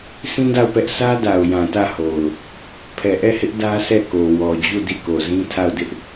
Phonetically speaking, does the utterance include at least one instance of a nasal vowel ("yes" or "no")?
yes